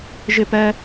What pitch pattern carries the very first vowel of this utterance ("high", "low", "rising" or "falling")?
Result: high